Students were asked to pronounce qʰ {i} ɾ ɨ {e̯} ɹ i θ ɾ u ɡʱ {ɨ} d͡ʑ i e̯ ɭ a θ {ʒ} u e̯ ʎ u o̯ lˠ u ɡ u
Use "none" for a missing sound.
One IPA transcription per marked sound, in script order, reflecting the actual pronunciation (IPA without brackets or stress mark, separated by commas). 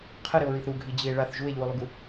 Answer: ɨ, o̯, i, ʒ